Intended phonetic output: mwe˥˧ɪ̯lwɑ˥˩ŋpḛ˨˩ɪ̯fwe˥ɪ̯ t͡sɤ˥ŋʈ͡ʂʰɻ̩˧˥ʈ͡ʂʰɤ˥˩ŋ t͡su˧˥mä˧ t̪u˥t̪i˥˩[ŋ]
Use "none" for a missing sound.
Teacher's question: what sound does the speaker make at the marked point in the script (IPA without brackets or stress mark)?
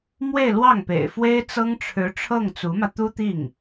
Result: ŋ